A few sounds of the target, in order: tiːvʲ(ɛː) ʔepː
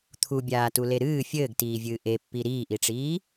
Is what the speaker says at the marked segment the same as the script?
no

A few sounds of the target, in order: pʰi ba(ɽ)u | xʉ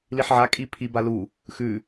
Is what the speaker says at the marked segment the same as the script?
no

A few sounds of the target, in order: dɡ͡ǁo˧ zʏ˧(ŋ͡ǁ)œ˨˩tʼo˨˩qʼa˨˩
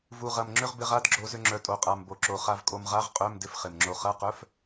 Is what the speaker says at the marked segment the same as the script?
yes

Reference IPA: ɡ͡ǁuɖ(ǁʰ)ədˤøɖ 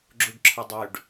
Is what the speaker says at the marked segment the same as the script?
yes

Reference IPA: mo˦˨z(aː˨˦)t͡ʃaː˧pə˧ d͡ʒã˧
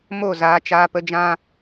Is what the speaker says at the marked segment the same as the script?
yes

